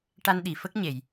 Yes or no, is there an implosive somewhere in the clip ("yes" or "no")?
yes